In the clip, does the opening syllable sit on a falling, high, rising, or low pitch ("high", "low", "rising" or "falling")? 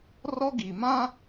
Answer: high